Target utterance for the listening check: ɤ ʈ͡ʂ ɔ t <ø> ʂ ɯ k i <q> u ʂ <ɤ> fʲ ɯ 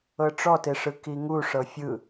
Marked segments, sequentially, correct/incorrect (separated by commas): incorrect, incorrect, correct